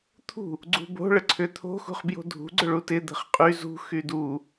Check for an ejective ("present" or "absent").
present